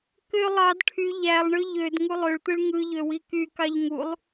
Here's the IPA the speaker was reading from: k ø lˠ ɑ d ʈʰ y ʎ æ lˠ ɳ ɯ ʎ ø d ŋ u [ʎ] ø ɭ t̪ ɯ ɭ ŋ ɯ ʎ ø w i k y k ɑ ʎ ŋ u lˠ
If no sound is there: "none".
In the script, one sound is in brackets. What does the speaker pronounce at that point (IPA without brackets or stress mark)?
lˠ